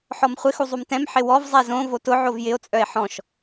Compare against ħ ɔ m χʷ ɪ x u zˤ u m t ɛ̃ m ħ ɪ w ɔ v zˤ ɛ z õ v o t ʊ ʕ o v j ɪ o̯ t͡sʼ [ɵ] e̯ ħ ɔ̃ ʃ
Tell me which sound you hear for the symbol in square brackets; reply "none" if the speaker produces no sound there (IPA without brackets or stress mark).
œ